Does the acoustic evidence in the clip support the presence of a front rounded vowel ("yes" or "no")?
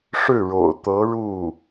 no